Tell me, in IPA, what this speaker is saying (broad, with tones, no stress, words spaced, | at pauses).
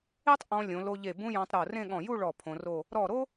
e˥tˤ ʔɔ̃˧lʲõ˩˧lo˧ʎe˧˩ bũ˥ jɔ̃˧tˤɾo˧˩rẽ˥˧ɠɔ̃˧˩ ju˥˧ɭɔ˧˩ pʰõ˧ro˥˧ | ɾɔ˧˩ɾo˥